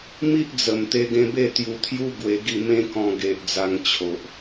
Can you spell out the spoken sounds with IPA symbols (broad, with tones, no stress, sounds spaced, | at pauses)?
m i˦ ʔ d͡z ə˨˩ m t̪ e˧ ɡ ẽ˧ b e˥˧ t̪ j u˧ t̪ʰ j u˦ ɡ w e˧ ɡ i˥˧ m ẽ˦ k ɔ̃˧ ɡ e˨ ʔ d͡z a˧ ŋ t͡ɕʰ o˨ ʔ